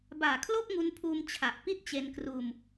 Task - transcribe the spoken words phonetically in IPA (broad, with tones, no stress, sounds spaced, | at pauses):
b aː˨˩ kʰ l o˥˩ k̚ ŋ u˧ n pʰ uː˧ m t͡ɕʰ a˨˩ ʔ p i˥˩ t̚ t͡ɕ e˧ n k r uː˧ m